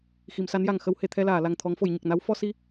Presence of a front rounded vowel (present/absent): absent